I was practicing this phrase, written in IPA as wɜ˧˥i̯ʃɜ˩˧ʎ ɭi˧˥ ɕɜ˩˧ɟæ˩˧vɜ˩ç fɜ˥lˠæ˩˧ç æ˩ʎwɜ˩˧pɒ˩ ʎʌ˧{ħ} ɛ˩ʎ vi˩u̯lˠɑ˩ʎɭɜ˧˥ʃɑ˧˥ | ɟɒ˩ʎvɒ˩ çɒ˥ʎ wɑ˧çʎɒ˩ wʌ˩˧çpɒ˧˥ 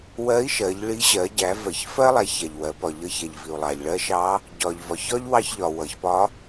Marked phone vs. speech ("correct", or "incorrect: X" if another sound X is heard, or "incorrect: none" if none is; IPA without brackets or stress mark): incorrect: ç